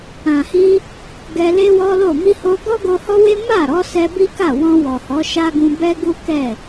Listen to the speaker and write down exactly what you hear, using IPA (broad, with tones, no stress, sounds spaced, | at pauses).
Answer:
ã˨ h i˧ | ɡ ɛ˧ l e˦ w ɔ˦ l o˦˨ m i˧ h o˧ ɡ ɔ˦ ɡ o˧ h ɔ˦ w e˦ m a˦˨ ɾ ɔ˨˦ s ɛ˧ b i˦ k a˦˨ w ɔ̃˧ w ɔ˨ h ɔ˨˦ ʃ a˦ ɡ ũ˧ b ɛ˦ ɡ u˦ k ɛ˦˨